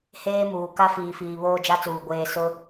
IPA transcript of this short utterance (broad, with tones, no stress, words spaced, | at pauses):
heː˦muː˨ ka˦fiː˨fiː˨ βoː˦d͡ʒa˦t͡suː˨ ɡʷeː˨ sʊ˦